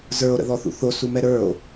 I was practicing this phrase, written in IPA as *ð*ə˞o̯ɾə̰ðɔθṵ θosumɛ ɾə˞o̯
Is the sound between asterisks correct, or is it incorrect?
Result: incorrect